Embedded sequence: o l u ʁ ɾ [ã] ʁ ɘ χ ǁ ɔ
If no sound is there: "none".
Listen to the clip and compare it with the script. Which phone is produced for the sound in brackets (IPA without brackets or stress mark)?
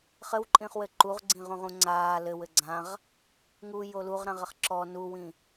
ã